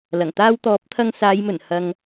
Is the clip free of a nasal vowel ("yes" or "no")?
yes